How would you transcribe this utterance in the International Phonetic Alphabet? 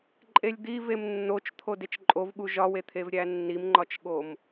ǃʼ e lʲ d̪ i v e m nː o t͡ʃ t̪ʰ o d e t͡ʃ ǃʼ o v ɠ u ʒ ɒ w e t̪ʰ e v ɾʲ æ nː i m ŋ͡ǃ ɒ t͡ʃ ɠ o m

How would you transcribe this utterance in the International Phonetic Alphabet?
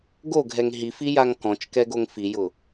ɡ o ɡʱ ɛ ŋ ɦ i f i j a ŋ k ɔ̃ t͡ʃ k ɛ ɡ o ŋ f i j ʊ

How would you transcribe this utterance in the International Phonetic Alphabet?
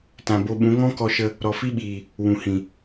t ã˨ b o˧ ɓ ũ˨˦ ŋ ɔ̃˦ k ɔ˧ ʃ ə˧ | ɾ ɔ˨ f i˦ ɓ iː˨ | w ũ˨ h ĩ˨

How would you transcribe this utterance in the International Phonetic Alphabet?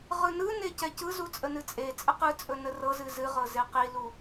ʁ ɯ n ɯ n e c ɛ c ɯ z u t͡sʼ ə n ɨ t͡sʼ e t͡sʼ ə q ɯ t͡sʼ ɵ n ə r ɤ z ɨ z ɨ ʁ ɤ z e q i l u

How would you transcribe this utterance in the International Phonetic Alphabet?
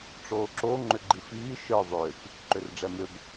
ʈ͡ʂ oː ǁ o ŋ͡ǃ ʏ ɡ͡ǃ i f iː ʃ ə˞ ðˤ ʏː kʷ | ǃ ʏ r ɖ͡ʐ ɛ m ʏ b

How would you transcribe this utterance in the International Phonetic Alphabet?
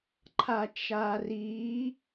ǃʰ a t͡ʃ a r i

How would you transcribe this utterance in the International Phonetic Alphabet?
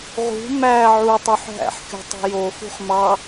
ʁ ṳ m æ ʕ u tˤ u ħ ɦ æ̰ ħ kʲ o̤ tˤ o̤ j o x ṳ χ m ɑ

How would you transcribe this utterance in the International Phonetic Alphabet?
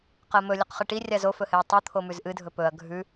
q ɐ m ɵ lʲ ɐ q χ ɨ ʈ i rʲ a z o f ɵ h e ɐ̯ tˤ u t̪ʰ o m ʉ z ʔ ɨ dʱ ɵ p ɵ ɐ̯ ɡʱ ʉ

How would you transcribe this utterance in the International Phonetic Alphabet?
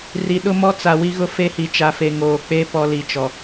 r i˨ ɗ ʊ˦ m ɔ˦ t͡s a˨ w i˦ ɣ ʊ˦ f e˦ h i˨ t͡ʃ a˨ f e˨ ŋ oː˨ k͡p e˦ p ɔ˦ l i˨ t͡ʃ ɔ˨

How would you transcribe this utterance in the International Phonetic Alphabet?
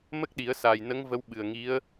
m ə˦˥ k̚ ɗ i˨˩˦ ə̯ s aː˨˩ j n ə˧˥ ŋ v ə˧˥ w ɓ ɨ˨˩ ə̯ ŋ i˧˥ ə̯

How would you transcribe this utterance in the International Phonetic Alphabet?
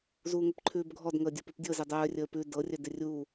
z uː ŋ ə p ǃʰ ʉː b ɡʱ ɔ d ŋ əː dʲ o p ʉ p dʲ ɤ z ɪ dˤ œː rʲ əː p ʉ d ɤ rʲ œ d ɪ rʲ uː

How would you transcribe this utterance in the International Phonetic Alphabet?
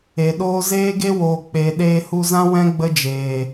e˨ ɗ oː˦ z eː˦ ɡ e˦ w oː˨ k͡p e˨ ɗ eː˧ h u˧ z ã˦ w ɛ̃˦ ɡ͡b ə˦ d͡ʒ eː˨

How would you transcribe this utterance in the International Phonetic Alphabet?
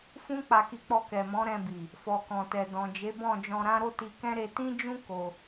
f ũ˦ k͡p a˧ k i˧ k͡p ɔ˧ k ɛ˨ m ɔ̃˨˦ ɾ ɛ̃˧ b i˨ | f ɔ˨ k ɔ̃˨ t ɛ˨ d ɔ̃˨ d͡ʒ e˨˦ b ɔ̃˦˨ d͡ʒ ɔ̃˧ ɾ ã˦ ɾ o˦ t i˧ k ɛ̃˦ ɾ e˧ t ĩ˦ d͡ʒ ũ˦ k o˧

